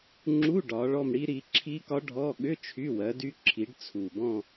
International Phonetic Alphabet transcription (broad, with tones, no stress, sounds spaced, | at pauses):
ŋ͡ǁ u˧˥˧ ɖ ɒ˨˦ ɭ ɔ˥˧ m ɽ i˦˥ ɾ i˨˦ ǁʰ i˦˥ k ɒ˦˥ ɖʱ ɔ˧˥˧ ɠ ʏ˧˥˧ t͡ʃʰ y˧˥˧ w ɜ˨˦ d y˦˥ ǁʰ i˨˦ ɖ t͡sʰ u˨˩ b ɔ̃˥˧